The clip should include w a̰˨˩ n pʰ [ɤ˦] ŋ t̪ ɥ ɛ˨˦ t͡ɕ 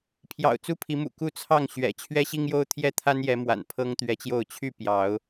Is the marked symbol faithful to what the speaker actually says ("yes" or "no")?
yes